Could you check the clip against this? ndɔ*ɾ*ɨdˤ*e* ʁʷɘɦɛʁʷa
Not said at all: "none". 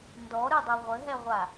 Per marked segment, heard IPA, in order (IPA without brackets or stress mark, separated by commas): ɾ, e